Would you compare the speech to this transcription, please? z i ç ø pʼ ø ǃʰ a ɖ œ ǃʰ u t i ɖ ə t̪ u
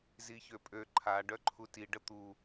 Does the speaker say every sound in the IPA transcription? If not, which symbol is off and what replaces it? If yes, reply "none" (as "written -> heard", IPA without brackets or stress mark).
none